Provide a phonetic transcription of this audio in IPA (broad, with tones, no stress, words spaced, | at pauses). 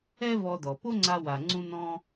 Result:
ɛ˥vɔ˧dɔ˩ po˥ŋ͡ǀa˧wa˩ ŋ͡ǀũ˧nɔ̃˧